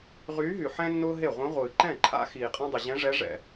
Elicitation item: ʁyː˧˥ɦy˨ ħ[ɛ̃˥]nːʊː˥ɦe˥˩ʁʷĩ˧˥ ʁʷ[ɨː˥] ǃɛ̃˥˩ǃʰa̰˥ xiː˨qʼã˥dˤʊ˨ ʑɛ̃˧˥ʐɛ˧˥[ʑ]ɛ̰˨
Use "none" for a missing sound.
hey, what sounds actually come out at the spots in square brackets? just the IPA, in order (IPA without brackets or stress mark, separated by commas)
ɛ̃˥, ɨː˨, ʐ